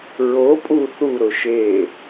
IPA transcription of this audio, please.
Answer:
ɹ o pʼ u θ u ɾ ʊ ʃ e

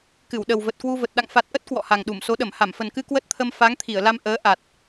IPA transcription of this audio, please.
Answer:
k ɨ˧˩ w ɗ ə˨˩ w v ə˨˩ t̚ k w u˧ v ə˨˩ t̚ ɗ a̰˧˨ ŋ f a˨˩ t̚ ʔ ə˦˥ t̚ k w ɔ̰˧˨ h a˨˩ ŋ ɗ u˧˩ m s o˨˦ ɗ ə˧˩ m h a˧˩ m f ə˨˩ n k ɨ˧ k w ə˦˥ t̚ t̪ʰ ə˧ m f a˨˦ ŋ t̪ʰ i˧˩ ə̯ l a˧ m ʔ əː˨˦ ʔ a˨˩ t̚

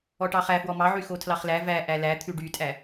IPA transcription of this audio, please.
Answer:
ɔ ʈ ɑ χ æ f w ɔ m ɑ ʕ y x o tʰ l ɑ χ l æ v æ ʔ æ l æ t̪ʰ ʉ ɖ y tʼ æ

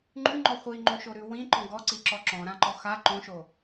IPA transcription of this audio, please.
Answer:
ŋ͡ǃ ʉ ŋ͡ǃ ɔ χʷ i ŋ͡ǃ õ ʃ o ɾ ʉ w ĩ ǃ ɔ̃ ɡ ɔ ǀ i ǁ ɔ ǁ ɔ̃ ɾ ã ǃ ɔ x a ǃ õ ʃ o

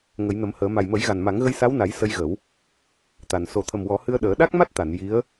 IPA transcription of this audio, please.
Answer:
ŋ ə˨˩˦ j n ə˨˩˦ m h əː˨˩˦ m a˨˩ j m ə˨˩˦ j ɣ a˨˩ n m a˨˩˦ ŋ ɣ ə˧ j s a˧˥ w n a˨˩˦ j s ə˧ j ɣ ə˨˩˦ w | t̪ a˨˩ n s o˨˩ t̪ʰ ə˨˩ m w ɔ˨˩˦ h ɨ˧ ə̯ ɗ əː˨˩˦ ɗ a˦˥ k̚ m a˦˥ t̚ t̪ a˨˩˨ n j i˧˥ ə̯

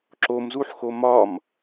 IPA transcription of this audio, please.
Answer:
ǁ o m z u ħ x o m ɒ m

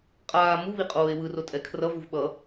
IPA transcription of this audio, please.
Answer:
qʼ aː m u β i qʼ oː e̯ w ɯ r o tʼ ɛ kʰ r ʌ v u v ɓ ʌ

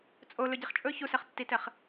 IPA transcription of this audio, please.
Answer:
t͡sʼ o l ɵ ɟ i χ t͡ʃʼ ɵ ç u s ɛ χ tː i t ɛ χ

